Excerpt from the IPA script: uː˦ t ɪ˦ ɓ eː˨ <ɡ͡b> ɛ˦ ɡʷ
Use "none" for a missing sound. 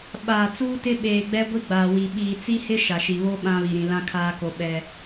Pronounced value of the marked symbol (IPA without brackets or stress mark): ɡ͡b